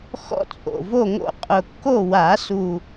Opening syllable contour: high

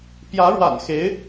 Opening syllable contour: rising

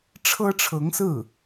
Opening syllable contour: high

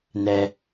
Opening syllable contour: low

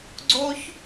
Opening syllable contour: high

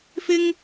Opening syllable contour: high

